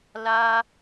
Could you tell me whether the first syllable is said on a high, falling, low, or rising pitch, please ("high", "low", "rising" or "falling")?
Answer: high